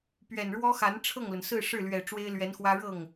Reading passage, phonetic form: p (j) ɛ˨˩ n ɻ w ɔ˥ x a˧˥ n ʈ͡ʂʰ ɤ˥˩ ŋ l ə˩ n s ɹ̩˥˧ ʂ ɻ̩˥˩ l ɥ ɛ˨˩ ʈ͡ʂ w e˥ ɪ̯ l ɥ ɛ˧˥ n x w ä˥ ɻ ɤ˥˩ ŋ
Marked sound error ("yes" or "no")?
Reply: yes